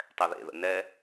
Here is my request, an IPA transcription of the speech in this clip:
tˤ ɛ ð ḛ ð ə̰ n ɛ

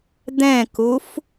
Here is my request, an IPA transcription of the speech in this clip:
d̪ ɛ̃ k u f

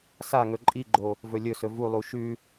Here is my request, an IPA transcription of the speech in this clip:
s a ŋ ɵ ǃʼ i ɡ͡ǃ o | v ɵ lʲ ɵ s ɵ v u lˠ u ʃ ʉ

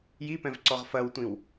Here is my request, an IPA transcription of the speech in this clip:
j i p ɛ̃ v ǀ ɔ ʁ f ɐ w tʷ ĩ w

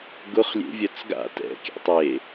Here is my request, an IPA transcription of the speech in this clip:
ɡ ʊ χ lʲ ḛ vʲ œ t͡s ɡ a̰ t ɛ̰ kʲ æ̰ tˤ e

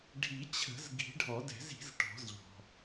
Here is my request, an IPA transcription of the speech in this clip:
ɖʱ i˨˩˦ t͡ɕʰ ə̤˨˩˦ z ɡ i̤˨˩˦ ɖʱ ɔ˨˩˦ d ɛ̤˨˩˦ z i̤˨˩˦ z ʈ ɔ̤˨˩˦ z ʎ ɔ̤˩

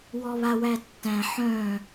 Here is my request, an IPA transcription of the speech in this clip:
w ɔ β a w æ tː æ̃ ħ œ̃

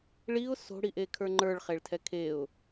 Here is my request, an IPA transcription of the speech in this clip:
ɭ i ʊ̯ s o̤ ɽ i ʔ e kʰ ə˞ ŋ͡ǃ ə˞ ɭ χ e ɭ tʰ ɛ kʰ e ʊ̯

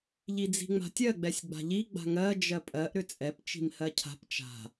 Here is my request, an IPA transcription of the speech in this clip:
ʎ i d͡z i̤ ŋ͡m a̤ tʲ ɜ ɡ͡b ɛ sʲ ɡ͡b a̤ ʎ i ɡ͡b a̤ ŋ ɜ d͡ʒ ɜ pʼ ɜ ʔ ɾ ʏ t͡sʼ ɛ p t͡ʃ i̤ m h ɜ cʰ a̤ p t͡ʃ a̤

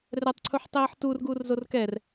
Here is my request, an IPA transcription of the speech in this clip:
r ɛ tˤ ǀʰ u ħ tˤ eː ħ t uː r ɡ uː r z o r k ɛ r

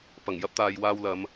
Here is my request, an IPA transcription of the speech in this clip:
p ɐ˨˩ ŋ j ɐ˥ p̚ t̪ aː˨ j w aː˥ w l ɐ˨˥ m

